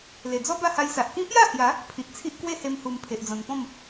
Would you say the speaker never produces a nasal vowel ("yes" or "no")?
no